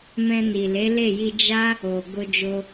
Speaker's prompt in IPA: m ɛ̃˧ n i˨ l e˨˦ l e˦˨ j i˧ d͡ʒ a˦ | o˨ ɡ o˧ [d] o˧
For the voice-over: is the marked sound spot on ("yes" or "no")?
no